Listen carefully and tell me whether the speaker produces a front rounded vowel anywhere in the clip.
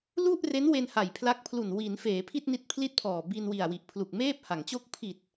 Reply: no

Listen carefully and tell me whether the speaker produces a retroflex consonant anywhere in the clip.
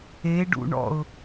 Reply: yes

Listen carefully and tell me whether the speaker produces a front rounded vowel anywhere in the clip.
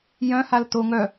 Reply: yes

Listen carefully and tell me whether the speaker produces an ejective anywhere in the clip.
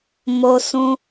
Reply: no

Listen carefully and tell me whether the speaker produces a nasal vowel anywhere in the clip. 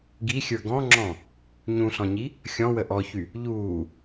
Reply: yes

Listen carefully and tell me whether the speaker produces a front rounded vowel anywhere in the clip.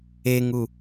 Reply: no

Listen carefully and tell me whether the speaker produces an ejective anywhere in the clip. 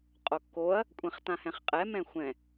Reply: yes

